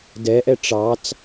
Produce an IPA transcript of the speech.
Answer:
d ɛ ʔ ɛ ʈ͡ʂ ɑ t͡s

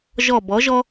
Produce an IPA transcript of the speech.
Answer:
ʒ ɔ˦˨ b ɔ˨˥ ʒ ɔ˥

